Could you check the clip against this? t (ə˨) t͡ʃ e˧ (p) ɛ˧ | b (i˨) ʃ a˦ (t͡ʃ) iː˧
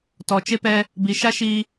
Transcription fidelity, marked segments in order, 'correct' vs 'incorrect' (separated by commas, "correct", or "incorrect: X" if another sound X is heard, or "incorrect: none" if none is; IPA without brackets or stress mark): incorrect: ɔ˨, correct, correct, incorrect: ʃ